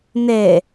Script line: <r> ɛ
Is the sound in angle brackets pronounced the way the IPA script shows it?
no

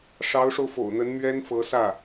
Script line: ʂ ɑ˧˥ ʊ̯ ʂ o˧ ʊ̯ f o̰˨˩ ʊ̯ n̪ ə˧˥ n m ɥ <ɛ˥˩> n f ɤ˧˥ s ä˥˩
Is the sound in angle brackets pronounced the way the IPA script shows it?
no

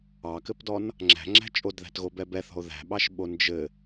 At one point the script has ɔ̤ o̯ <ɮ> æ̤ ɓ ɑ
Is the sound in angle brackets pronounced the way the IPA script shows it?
no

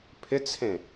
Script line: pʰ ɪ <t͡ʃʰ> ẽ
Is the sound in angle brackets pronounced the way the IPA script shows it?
no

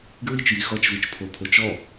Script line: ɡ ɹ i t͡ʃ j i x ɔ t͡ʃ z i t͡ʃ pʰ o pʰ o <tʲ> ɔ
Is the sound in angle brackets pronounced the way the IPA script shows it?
no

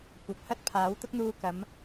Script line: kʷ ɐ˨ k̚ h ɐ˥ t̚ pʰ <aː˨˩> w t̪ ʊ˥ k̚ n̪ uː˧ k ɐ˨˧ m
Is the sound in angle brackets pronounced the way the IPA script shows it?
no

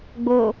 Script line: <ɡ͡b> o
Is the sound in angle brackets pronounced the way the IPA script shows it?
yes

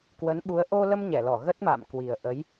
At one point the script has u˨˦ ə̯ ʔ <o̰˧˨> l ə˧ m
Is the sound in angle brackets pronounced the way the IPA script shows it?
no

